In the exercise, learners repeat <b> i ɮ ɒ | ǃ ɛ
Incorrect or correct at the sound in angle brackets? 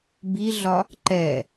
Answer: correct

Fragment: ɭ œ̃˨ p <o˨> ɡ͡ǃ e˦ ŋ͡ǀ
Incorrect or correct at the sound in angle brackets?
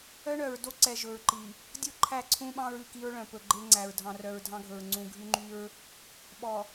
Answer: incorrect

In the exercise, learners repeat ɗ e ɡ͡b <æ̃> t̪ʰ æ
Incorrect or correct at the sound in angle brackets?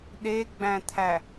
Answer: correct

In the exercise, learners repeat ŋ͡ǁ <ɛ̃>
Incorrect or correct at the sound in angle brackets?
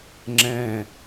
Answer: correct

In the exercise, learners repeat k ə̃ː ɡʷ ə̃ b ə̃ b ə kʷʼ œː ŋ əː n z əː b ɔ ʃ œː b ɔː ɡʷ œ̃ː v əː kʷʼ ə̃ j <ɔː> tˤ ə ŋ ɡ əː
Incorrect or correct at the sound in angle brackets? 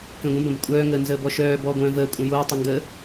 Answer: incorrect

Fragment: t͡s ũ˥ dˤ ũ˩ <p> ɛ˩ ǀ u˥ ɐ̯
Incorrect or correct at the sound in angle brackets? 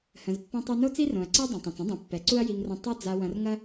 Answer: incorrect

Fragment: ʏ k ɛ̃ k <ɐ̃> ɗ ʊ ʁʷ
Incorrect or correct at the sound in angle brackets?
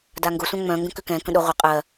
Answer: incorrect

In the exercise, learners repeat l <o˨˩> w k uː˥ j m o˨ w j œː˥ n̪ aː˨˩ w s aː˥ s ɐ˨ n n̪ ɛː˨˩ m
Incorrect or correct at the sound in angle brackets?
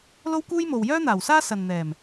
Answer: incorrect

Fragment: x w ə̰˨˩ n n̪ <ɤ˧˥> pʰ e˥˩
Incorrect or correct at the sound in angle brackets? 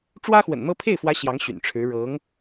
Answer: incorrect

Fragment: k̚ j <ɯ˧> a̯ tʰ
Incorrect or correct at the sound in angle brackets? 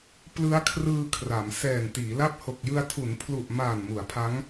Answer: correct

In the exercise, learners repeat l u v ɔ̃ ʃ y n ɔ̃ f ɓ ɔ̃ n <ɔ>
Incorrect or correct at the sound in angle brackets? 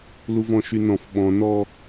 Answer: correct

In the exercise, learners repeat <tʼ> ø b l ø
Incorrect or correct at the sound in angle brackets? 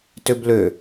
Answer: incorrect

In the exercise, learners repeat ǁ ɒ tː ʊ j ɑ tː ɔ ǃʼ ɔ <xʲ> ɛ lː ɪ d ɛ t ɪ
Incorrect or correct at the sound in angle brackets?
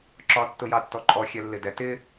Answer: correct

